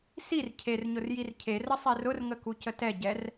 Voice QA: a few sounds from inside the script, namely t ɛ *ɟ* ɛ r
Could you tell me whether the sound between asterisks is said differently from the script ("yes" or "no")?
no